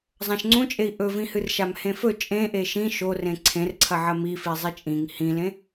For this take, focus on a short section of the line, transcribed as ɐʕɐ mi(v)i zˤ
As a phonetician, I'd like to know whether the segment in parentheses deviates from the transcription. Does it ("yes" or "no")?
yes